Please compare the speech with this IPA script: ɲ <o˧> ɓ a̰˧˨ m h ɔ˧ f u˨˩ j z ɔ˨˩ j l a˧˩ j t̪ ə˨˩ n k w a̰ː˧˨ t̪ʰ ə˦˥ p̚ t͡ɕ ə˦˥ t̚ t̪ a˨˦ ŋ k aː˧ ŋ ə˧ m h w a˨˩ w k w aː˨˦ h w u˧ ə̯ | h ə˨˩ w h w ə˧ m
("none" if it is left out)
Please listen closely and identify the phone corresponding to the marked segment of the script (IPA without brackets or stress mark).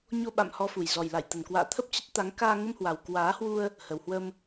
o˧